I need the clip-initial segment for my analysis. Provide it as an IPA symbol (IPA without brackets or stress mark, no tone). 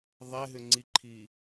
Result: ðˤ